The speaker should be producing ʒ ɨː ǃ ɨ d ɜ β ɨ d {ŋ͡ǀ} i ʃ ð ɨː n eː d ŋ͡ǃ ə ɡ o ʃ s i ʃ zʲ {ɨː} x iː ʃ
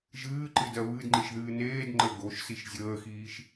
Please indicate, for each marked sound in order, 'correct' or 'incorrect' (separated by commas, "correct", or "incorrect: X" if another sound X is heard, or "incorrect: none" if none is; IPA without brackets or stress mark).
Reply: incorrect: ŋ͡ǃ, incorrect: əː